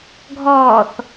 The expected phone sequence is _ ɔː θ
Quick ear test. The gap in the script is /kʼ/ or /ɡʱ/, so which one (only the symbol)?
ɡʱ